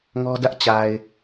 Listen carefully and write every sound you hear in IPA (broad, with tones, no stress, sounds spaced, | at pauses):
ŋ ɔ˦ d ä˦ ʔ t͡ɕ a˨ ɪ̯